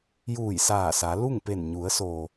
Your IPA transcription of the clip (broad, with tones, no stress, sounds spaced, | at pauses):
j uː˧˩ j s aː˧˩ s a˩˧ l u˥˨ ŋ p e˧˩ n ɲ u˩˧ ə̯ s o˩